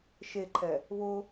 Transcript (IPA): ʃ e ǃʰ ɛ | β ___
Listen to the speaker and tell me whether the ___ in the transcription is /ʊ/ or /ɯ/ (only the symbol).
ʊ